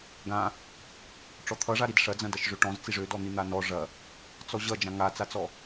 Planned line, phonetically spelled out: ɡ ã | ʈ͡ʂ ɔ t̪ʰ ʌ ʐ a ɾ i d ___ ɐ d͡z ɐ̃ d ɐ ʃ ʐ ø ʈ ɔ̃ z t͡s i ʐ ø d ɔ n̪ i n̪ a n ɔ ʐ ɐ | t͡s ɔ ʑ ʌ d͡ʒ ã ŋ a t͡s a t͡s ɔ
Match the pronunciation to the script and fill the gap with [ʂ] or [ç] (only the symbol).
ʂ